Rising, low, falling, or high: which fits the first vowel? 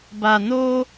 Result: low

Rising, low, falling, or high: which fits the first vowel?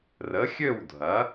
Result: rising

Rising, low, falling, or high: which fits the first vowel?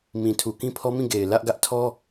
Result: low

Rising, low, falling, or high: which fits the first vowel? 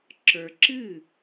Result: low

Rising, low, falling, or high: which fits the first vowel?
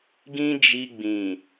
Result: high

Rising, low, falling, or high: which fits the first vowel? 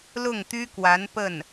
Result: falling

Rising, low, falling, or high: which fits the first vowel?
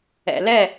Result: low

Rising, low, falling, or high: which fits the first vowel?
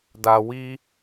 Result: low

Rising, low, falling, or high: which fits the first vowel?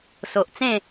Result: low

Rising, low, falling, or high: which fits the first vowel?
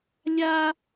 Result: high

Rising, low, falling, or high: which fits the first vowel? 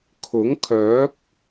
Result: rising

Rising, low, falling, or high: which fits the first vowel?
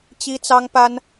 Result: high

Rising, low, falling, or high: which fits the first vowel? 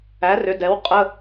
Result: rising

